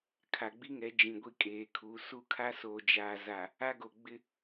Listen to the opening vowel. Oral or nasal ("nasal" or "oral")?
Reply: oral